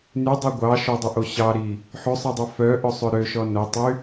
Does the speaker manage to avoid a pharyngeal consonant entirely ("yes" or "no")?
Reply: no